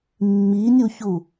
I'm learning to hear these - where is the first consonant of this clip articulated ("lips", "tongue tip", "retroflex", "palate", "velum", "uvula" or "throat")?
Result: lips